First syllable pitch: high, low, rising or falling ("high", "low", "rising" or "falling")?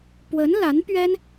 rising